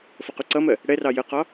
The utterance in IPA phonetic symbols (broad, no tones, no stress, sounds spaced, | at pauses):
f ʌ q u ǀ ʌ m ɜ | ɽ ɛ r ɑ j ə q ɒ